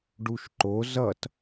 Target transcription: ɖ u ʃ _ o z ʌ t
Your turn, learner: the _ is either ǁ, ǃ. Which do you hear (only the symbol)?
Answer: ǃ